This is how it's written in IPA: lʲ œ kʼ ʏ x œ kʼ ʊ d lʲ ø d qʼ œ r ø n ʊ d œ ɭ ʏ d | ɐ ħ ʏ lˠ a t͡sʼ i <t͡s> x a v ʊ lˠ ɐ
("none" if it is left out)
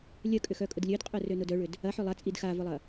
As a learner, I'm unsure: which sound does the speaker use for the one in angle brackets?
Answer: d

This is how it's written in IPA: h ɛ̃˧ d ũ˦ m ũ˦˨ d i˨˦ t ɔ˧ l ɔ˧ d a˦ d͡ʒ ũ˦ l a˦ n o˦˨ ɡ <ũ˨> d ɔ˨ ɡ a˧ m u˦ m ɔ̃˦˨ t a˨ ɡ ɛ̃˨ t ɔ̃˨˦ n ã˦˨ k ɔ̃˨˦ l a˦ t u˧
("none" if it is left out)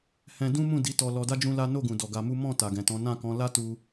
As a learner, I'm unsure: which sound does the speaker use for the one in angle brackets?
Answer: ũ˨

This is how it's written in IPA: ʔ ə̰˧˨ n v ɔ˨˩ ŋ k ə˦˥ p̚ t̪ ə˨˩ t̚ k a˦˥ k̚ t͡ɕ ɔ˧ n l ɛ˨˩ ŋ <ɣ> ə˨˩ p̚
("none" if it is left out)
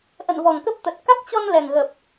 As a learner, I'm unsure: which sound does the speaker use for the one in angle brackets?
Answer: ɣ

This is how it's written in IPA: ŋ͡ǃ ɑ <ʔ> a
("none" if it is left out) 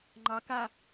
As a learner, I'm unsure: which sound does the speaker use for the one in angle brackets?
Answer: k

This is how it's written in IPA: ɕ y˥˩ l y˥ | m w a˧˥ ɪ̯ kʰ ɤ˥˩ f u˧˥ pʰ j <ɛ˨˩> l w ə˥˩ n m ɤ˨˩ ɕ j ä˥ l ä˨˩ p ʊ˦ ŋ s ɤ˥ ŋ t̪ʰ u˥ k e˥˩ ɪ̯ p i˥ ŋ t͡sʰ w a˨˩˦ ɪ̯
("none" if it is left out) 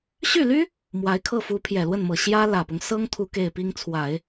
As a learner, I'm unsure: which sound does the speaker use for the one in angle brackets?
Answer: ɛ˨˩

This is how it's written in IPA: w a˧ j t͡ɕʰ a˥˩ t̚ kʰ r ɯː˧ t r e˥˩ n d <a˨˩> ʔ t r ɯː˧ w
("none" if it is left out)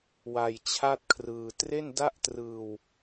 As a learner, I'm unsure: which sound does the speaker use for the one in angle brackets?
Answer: a˥˩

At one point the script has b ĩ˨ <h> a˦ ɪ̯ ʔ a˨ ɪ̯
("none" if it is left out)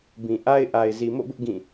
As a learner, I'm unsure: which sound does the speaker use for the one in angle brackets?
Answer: ʔ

